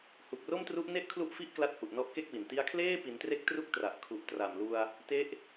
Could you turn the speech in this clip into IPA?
hu˨˩k̚ro˥˩mtru˦˥ʔne˥˩ʔ kʰlu˥˩ʔfi˥˩ʔkla˦˥t̚ hu˨˩ʔnɔ˦˥ʔke˥˩k̚wi˨˩n ti˧a̯kʰleː˥˩ pi˩˦ntre˦˥k̚ tru˥˩k̚tra˨˩ʔ kʰu˨˩ʔtra˨˩mlu˧a̯ | te˦˥ʔ

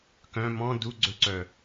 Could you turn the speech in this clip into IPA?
kœ̃ mɔ̃ duɡ͡ǀɵǀœ

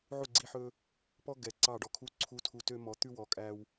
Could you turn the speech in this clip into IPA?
ʕu˦˨ɡ͡ǀi˧ħɵ˧ | pɔ˦ ɡɛ˨ ǀɑ˦˨ɖɔ˧kʰu˦ ǀʰu˦tʰu˧tø˦ mɔ˨˦t̪ʉ˦wɔ˨kʼæ˧w

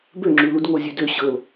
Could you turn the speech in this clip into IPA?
bøŋ͡ǁʉlud ŋozʲʉdø ɕɤl

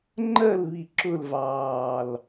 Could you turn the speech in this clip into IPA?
ŋ͡ǃɜlβi ǁʊlvɑːl

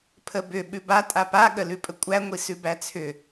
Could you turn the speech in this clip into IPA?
pʰəbʏ ɓʉba tʼapa ɠəlʉpʼəkʷʼæ ŋʷisʉbæt͡sʰʏ

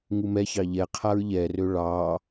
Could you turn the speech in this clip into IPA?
ŋumɛçɑ ʎɛ qʰaɹʎɛrø ɭɑ

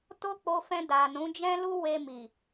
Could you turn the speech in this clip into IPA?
to˦k͡po˧fɛ̃˧ da˨nũ˨˦d͡ʒɛ̃˦lu˦ we˧mi˨

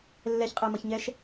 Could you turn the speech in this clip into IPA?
lːɛçqʼɛmʌçɲɛʃ

